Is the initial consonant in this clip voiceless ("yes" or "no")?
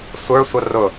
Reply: yes